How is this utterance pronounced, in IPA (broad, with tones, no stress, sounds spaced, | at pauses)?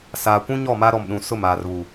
s aː˨ kʷ ũ˦ ɲ ɔ˦˨ m a˦ ɾ ɔ˨ m ɗ ũ˨ s ʊ˦˨ m aː˨ r β u˨